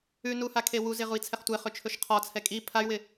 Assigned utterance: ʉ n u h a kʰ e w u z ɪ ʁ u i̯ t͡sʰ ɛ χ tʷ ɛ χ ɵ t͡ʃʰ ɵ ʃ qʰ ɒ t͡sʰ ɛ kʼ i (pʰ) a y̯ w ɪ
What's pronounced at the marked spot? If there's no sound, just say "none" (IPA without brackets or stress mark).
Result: pʰ